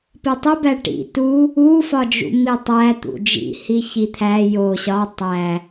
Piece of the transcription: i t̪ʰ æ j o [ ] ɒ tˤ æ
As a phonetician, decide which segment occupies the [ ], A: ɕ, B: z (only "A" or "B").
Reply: A